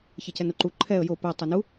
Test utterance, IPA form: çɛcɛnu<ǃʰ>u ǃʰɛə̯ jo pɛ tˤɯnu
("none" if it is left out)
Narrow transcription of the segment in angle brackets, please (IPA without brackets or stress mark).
ǃ